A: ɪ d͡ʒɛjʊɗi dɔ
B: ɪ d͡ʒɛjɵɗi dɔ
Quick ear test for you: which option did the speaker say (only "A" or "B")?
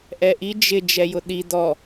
A